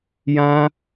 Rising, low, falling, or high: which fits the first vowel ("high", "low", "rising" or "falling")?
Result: high